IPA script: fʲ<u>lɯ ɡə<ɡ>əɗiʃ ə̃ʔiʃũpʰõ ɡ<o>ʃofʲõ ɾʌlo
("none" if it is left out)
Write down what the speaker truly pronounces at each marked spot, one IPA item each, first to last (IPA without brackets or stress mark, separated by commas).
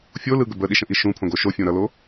o, b, o